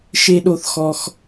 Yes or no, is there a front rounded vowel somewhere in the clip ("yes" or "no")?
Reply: no